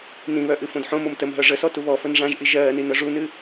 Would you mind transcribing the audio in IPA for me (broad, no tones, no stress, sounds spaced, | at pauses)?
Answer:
n ĩ β œ ʔ ɨ f õ d ħ õ m o m t ə m ɦ œ ʐ ə s ɔ t u β ɔ f ə n ʐ ã ʒ ʔ i ʒ ɜː n i n œ ʐ u n ɨ